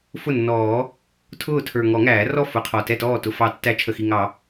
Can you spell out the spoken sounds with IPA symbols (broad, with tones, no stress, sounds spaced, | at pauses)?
f ʊ˥˩ nː ɔː˨˩˦ | tʰ ʊː˥˩ tʰ ə˞˨˩ ŋ ɔ˨˩˦ ŋ æː˨˩˦ r ɔ˥˩ f ʊ˨˩˦ qʰ ɔ˨˩ t ɛ˥˩ t ɔː˥˩ t ʊ˨˩ f ɑ˨˩˦ tː æ˨˩˦ t͡ʃʰ ə˨˩ x i˨˩ ŋ ɑ˨˩˦